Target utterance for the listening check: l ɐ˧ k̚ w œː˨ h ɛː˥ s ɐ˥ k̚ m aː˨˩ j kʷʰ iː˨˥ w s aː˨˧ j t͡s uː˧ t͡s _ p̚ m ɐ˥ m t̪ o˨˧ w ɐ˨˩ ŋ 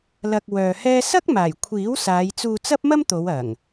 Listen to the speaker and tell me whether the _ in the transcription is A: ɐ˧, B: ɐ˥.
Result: B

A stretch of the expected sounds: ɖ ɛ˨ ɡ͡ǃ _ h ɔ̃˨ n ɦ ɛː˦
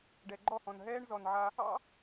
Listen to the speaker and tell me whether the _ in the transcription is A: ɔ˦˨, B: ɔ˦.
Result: A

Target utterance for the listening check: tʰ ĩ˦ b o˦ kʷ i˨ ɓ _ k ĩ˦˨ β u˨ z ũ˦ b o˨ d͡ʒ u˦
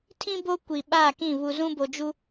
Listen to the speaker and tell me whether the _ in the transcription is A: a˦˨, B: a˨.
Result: A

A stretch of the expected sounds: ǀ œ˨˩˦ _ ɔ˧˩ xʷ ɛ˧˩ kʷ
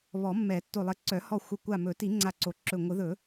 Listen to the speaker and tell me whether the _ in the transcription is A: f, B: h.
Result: B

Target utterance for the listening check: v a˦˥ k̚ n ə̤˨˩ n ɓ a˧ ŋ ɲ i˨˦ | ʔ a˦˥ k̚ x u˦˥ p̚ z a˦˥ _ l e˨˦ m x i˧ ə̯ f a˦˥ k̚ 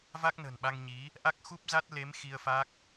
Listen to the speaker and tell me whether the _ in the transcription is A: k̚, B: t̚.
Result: B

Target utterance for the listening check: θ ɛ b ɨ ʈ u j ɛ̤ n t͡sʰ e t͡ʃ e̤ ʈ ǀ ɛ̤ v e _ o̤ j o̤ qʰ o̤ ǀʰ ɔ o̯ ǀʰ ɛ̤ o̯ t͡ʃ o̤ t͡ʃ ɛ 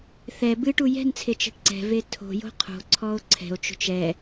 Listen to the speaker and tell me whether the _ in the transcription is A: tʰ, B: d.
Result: A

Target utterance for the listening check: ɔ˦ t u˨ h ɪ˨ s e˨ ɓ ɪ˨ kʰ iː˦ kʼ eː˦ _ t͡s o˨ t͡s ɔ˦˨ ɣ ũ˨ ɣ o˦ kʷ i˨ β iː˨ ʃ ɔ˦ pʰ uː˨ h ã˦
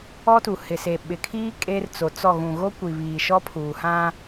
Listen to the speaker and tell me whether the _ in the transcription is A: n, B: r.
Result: B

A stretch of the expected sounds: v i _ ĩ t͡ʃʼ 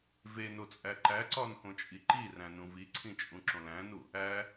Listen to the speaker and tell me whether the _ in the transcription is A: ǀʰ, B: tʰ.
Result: A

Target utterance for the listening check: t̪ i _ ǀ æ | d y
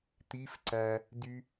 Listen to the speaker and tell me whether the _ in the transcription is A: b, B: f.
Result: B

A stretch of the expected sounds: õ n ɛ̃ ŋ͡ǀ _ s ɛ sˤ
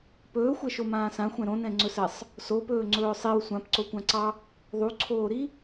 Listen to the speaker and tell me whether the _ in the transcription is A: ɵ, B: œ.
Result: A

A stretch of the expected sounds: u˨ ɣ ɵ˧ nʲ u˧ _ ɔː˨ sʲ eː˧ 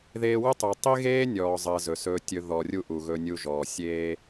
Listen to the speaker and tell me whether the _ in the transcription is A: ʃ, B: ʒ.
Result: B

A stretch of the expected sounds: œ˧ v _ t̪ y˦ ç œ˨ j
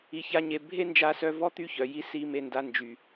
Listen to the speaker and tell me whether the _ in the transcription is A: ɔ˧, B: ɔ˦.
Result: B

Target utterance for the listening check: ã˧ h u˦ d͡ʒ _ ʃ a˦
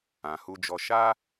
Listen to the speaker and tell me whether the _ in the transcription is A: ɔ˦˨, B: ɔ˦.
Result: B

